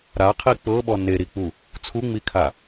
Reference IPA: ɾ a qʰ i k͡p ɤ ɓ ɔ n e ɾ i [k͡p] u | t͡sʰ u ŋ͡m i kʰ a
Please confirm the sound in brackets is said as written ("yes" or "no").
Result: yes